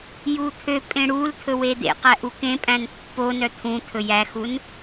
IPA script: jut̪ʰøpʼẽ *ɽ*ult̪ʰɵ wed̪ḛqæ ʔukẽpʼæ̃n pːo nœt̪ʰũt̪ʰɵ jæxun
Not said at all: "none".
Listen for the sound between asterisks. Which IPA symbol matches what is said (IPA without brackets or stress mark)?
ɽ